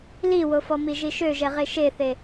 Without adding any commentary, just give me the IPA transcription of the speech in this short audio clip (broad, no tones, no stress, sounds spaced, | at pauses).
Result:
l i w o f ɔ m i ʒ i ʃ ø ʒ ɛ ʁ e ʃ e θ e